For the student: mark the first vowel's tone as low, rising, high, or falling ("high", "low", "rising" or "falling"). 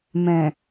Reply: low